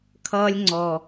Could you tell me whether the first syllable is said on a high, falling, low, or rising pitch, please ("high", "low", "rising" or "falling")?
high